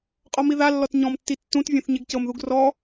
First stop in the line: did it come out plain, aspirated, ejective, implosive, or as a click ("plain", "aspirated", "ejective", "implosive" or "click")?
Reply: ejective